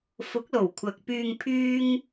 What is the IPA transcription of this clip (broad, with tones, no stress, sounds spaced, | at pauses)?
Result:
f ʊ˨˥ k̚ l o˨˩ w kʷʰ ɐ˨ k̚ p yː˨ ŋ pʰ yː˧ ŋ